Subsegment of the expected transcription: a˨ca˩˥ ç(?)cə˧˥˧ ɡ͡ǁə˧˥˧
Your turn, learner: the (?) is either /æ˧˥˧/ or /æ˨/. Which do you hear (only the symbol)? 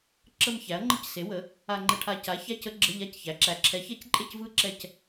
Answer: æ˧˥˧